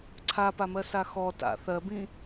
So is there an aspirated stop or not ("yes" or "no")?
yes